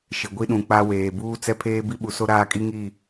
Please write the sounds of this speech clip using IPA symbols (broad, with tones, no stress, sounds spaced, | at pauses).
ʃ ɪ˨ ɡʷ i˦ ɗ ũ˨ k͡p a˦ w eː˨ b uː˦ t͡s ɛ˦ pʰ eː˦ b i˦ ɓ u˨ s o˦ ɾ aː˦ kʼ i˦ ŋ i˦˨